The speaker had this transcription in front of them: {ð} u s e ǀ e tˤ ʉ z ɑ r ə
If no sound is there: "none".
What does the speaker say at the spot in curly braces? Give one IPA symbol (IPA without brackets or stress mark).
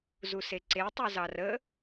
z